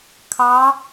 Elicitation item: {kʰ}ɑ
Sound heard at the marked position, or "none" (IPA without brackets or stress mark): kʰ